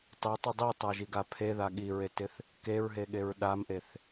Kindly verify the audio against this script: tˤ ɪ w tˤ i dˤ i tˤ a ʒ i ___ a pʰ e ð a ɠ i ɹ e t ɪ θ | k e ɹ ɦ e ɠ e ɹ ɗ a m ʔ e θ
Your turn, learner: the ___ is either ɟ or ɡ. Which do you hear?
ɡ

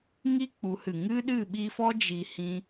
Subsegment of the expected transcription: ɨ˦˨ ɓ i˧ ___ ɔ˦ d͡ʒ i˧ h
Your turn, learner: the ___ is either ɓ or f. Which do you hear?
f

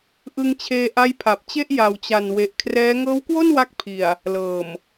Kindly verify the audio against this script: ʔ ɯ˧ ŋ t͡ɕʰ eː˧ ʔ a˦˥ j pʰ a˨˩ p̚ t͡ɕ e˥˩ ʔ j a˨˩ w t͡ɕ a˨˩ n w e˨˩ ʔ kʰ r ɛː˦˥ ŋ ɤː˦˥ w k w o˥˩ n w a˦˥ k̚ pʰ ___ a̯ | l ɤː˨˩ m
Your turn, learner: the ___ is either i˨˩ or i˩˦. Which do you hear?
i˨˩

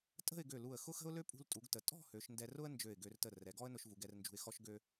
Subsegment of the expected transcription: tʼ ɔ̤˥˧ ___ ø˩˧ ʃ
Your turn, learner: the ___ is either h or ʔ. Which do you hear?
h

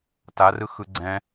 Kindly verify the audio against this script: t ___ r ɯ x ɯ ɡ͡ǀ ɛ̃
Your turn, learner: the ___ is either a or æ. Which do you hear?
a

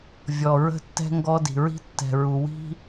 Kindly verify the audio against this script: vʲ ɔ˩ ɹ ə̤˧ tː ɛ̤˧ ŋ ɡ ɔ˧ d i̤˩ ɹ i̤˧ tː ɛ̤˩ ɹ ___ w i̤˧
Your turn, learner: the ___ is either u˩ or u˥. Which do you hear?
u˩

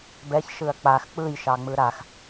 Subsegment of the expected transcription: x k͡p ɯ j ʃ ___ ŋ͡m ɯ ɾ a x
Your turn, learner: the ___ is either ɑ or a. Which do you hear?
ɑ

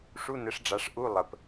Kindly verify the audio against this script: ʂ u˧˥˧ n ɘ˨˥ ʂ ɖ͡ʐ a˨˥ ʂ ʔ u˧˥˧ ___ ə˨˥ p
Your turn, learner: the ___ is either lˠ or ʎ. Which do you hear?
lˠ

